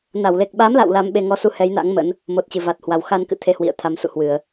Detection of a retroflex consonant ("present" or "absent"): absent